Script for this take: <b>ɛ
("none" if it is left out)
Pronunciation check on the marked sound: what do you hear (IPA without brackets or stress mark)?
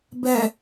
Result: b